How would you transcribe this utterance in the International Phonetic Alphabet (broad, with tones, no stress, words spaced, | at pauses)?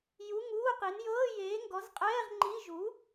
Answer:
ju˧˥˧ŋuː˧˥˧qi˨˥n jɤː˧˥˧jeː˨˥ŋɡɔ˨˥zqʼɛː˧˥˧ʁ ŋ͡ǃi˧˥˧ ʒu˨˥